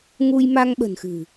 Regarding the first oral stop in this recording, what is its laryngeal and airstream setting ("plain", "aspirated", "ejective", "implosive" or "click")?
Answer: implosive